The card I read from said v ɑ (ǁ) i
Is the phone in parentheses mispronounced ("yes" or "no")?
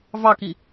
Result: yes